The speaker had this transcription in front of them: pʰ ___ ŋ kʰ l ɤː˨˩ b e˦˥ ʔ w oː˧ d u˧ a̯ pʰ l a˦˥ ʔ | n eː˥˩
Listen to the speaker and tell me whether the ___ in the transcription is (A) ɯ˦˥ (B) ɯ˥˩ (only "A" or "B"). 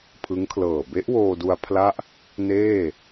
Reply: A